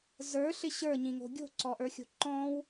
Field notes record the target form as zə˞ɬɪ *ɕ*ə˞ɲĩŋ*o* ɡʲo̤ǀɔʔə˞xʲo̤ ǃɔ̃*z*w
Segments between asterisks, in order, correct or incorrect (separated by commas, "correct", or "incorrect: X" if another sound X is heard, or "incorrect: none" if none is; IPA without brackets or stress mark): correct, incorrect: o̤, incorrect: none